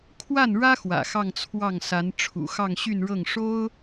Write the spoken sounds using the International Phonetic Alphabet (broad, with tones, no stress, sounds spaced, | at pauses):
kʰ w a˥˩ n ɻ ä˥ x w ä̰˨˩ x ɑ˥˧ ŋ t͡sʰ w ɑ˥˩ ŋ s a˧˥ n ʈ͡ʂʰ ṵ˨˩ x ɑ˥˧ ŋ ɕ y˥˧ n ɻ ɤ˥˩ ŋ ʂ o˥ ʊ̯